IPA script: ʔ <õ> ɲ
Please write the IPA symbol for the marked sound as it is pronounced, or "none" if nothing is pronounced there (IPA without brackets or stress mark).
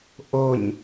o